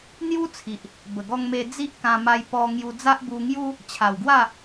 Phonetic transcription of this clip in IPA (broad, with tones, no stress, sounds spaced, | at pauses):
n̪ j u˦ t͡sʰ i˨ ʔ | b ə˨˩ ɡ ɔ˧ ŋ m e˧ d͡z i˦ ʔ k ã˧ m a˧ j p ɔ˧ ŋ j u˧ d͡z a˦ ʔ b u˧ ŋ j u˦ | t͡ɕʰ a˨˩ w ɡ w a˥˧